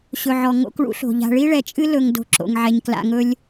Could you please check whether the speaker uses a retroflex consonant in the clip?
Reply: yes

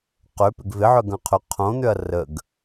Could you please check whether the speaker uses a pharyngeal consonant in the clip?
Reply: yes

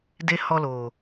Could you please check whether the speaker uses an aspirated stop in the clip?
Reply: no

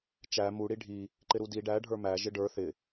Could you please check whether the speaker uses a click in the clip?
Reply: yes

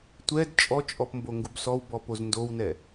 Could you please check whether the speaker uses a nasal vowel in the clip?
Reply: no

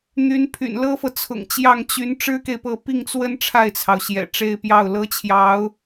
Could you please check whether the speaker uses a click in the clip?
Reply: no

